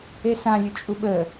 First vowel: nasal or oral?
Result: oral